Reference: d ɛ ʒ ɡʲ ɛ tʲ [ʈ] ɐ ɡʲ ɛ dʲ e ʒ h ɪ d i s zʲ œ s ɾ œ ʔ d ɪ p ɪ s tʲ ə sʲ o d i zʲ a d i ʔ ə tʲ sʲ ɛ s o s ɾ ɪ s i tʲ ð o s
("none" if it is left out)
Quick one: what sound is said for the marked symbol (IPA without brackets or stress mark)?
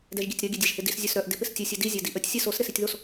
ɾ